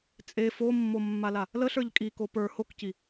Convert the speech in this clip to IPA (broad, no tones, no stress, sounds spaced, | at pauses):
t͡sʼ e f o mː o mː a l a | l ə ɬ ə˞ ʎ kʼ i k o p ə˞ h o k c i